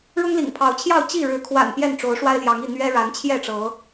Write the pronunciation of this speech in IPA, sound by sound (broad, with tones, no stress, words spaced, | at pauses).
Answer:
ɻʊ˦ŋlḭ˨˩ŋpʰɑ˨˦ʊ̯t͡ɕʰjɑ˥˨ʊ̯ t͡ɕi˥˨ɻɻ̩˨˦ kʰwa̰˨˩n pjɛ˥˨nʈ͡ʂo˨˦ʊ̯ ʂwa˦ɪ̯ljɑ˨˦ŋi˥˨ n̪ɥɛ˦ ɻa˨˦nt͡ɕʰjɛ˥˨ʈ͡ʂɤ˨˦